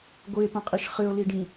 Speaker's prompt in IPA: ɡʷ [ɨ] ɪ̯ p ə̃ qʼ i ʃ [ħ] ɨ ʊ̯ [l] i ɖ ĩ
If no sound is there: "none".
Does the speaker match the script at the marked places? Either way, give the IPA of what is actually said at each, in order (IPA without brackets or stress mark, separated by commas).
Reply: ɨ, χ, l